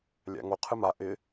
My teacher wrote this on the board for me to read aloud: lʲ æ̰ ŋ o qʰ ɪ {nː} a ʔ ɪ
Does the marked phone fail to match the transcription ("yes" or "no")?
yes